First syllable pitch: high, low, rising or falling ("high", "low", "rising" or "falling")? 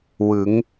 rising